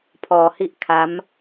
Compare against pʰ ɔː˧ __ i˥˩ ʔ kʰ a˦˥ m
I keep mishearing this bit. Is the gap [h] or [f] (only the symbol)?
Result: h